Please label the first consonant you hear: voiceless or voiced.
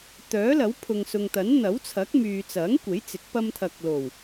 voiceless